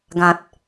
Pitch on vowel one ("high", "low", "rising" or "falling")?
low